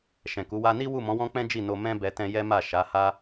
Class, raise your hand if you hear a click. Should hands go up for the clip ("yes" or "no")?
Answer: no